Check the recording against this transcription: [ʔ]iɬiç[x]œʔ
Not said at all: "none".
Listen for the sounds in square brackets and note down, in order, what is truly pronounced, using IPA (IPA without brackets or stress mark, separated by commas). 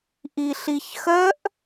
ʔ, x